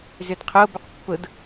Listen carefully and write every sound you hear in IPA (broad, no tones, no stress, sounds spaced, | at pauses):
z ʏ d qʰ o b ɵ q pː ʊ d